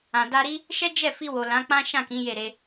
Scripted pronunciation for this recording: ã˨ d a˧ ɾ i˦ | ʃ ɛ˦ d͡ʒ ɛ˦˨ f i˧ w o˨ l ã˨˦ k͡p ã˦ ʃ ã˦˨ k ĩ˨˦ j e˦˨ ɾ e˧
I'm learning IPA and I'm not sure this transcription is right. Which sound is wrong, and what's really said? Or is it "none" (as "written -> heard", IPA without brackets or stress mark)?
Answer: none